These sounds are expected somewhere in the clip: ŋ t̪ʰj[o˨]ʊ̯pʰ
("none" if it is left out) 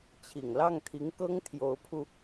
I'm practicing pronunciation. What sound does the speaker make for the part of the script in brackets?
o˧˥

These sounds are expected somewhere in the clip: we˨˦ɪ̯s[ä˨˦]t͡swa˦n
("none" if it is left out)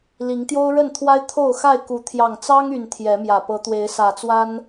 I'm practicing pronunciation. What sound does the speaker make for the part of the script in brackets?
ä˨˩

